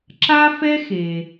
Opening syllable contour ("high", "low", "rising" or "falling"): high